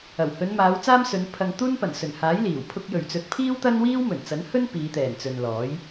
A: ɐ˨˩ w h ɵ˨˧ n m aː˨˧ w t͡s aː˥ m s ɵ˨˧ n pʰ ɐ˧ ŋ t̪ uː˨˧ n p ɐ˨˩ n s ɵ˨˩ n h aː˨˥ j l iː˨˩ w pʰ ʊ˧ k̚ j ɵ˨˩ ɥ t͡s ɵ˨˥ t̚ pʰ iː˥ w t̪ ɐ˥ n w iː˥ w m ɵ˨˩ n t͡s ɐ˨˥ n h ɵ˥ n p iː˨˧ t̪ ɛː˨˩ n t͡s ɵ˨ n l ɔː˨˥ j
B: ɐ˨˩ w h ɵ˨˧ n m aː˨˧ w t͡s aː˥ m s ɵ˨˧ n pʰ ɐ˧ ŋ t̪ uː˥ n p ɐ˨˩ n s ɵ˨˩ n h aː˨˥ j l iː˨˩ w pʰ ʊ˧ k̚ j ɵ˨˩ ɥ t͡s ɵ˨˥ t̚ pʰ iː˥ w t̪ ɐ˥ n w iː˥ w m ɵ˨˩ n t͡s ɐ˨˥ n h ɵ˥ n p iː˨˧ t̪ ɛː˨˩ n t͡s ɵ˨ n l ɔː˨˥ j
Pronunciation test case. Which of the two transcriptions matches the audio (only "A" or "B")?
B